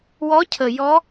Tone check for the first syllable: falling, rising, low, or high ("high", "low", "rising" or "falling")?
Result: rising